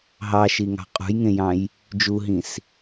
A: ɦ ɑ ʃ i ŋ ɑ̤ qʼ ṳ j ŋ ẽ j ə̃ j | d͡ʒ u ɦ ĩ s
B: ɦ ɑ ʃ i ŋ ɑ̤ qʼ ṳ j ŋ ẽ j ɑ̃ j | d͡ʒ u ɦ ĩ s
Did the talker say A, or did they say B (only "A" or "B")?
B